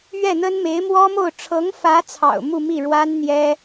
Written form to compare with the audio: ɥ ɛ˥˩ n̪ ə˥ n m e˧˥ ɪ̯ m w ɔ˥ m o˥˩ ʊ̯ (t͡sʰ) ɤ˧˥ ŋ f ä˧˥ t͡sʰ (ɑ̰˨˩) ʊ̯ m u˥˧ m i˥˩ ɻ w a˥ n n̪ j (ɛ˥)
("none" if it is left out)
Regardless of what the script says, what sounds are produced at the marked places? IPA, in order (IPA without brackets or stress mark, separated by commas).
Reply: ʈ͡ʂʰ, ɑ̰˨˩, ɛ˥